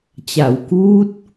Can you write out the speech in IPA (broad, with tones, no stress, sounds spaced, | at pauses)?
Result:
t͡ɕ a˩˦ w k uː˦˥ t̚